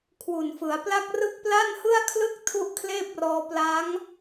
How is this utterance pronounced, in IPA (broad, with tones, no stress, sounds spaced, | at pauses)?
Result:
kʰ w u˨˩ n f ɯ˩˦ a̯ p l a˥˩ k̚ r ɯ˥˩ k̚ p l a˥˩ n h ɯ˥˩ a̯ kʰ l ɯ˥˩ k̚ tʰ u˥˩ ʔ kʰ l eː˥˩ p̚ r ɔː˧ p l a˦˥ ŋ